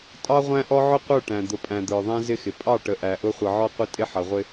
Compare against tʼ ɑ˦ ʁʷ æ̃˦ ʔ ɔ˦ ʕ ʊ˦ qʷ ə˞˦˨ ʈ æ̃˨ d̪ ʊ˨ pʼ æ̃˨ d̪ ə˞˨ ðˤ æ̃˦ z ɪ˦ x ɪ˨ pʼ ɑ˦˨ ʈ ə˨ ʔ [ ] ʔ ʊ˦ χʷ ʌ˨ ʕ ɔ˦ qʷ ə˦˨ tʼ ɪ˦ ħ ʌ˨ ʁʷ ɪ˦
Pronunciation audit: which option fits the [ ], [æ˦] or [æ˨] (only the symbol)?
æ˨